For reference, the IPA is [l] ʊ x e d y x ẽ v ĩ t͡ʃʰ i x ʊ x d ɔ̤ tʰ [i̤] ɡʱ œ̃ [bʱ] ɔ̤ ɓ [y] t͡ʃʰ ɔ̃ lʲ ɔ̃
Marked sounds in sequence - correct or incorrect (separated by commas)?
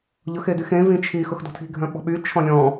incorrect, correct, incorrect, correct